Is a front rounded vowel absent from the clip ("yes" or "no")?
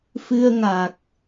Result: yes